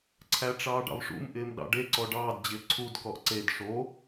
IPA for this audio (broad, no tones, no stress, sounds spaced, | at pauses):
ǀʰ æ ʈ͡ʂ ɑː ɖ ɑ̰ v ʂ ṵ m ʔ ɪː m ɗ ɑ̰ ɖ e ǀ ɔ ɖ ɑː d d͡ʑ ɪː ǀʰ u d k ɔ ʔ ǀ e d ʂ o